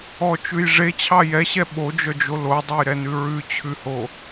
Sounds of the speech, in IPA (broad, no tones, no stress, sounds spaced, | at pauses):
ɔ t͡ʃ ʉ j ʐ e t͡ɕʰ ɑ j ɛ ɕ ɛ ɓ o d͡ʒ œ d͡ʒ o l o dˤ ɛ j ɾ ɛ n ʉ ɹ ʉ t͡ɕʰ ʉ h o